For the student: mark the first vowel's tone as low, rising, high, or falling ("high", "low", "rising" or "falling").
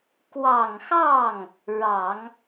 low